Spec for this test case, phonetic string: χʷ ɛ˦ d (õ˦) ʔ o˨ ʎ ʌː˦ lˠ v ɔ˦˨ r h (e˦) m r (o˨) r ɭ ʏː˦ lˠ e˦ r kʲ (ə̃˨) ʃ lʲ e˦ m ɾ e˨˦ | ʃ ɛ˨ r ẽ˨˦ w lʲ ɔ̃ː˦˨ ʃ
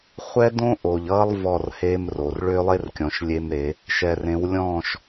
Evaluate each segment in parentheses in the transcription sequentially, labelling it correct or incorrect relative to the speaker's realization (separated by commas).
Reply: correct, correct, correct, incorrect